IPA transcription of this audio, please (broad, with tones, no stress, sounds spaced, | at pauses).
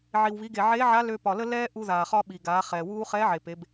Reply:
ʕ i˩ w β i˩˧ ɡ e˩ ʕ eː˧˥ ʕ a˧˥ l ø˧ p ɒ˩ l ə˥ l ɛː˥ ʔ u˧ ð aː˩ χ ɒ˥ ɓ i˩ ɡ aː˩˧ χ ɛː˩ w uː˥ χ ɛː˧˥ ʕ e˩ p e˩˧ b